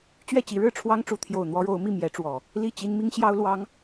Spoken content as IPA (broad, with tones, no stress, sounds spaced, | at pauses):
t͡ɕ ɥ ɛ˥˨ t͡ɕ i˨˦ ɻ ɻ̩˥˨ ʈ͡ʂʰ w ɑ˦ ŋ ʈ͡ʂ u˨˦ t̪ʰ j o˨˩ ʊ̯ n̪ w ɔ˦ ɻ o˨˦ ʊ̯ m i˥˨ m j ɛ˨˦ ʈ͡ʂ w ɔ˨˩ | l i˥˨ t͡ɕ i˦ n m i˦ ŋ ɕ j ɑ˦ ʊ̯ l w ɑ˨˦ ŋ